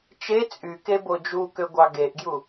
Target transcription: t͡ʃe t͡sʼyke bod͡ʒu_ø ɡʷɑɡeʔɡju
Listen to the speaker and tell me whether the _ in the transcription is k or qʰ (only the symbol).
k